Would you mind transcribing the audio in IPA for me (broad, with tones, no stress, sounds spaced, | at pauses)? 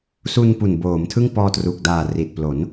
s u˧ n p u˨˩ n b oː˩˦ m tʰ ɯ˥˩ ŋ p ɔː˧ t r uː˨˩ k̚ d aː˨˩ r i˨˩ t̚ p l o˩˦ n